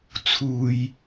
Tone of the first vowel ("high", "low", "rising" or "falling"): low